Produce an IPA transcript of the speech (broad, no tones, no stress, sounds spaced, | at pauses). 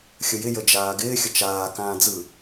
xʲ ə j ɪ j ə d͡ʒ aː ɡ ɪː xʲ ə t͡ʃ aː k ãː d͡z ɯ